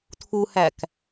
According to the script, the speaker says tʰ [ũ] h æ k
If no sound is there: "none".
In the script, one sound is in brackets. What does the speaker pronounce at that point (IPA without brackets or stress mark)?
u